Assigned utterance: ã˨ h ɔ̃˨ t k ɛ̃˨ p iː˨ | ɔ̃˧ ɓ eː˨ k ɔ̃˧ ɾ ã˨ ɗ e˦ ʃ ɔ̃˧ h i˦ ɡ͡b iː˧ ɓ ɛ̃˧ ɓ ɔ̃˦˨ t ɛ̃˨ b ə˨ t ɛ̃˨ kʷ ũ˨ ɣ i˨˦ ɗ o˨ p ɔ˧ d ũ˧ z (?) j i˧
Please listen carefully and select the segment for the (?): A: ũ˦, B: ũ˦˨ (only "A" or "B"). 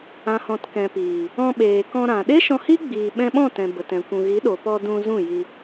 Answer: B